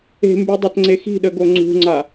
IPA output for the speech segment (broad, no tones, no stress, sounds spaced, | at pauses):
e̤ m b y dˤ a t ŋ͡ǀ e x i̤ ɗ ə ɡ o ŋ͡ǀ ṳ ŋ͡ǀ a